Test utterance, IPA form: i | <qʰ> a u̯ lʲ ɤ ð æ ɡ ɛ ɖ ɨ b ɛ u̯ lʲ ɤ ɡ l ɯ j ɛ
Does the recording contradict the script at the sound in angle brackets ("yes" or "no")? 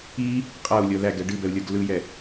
yes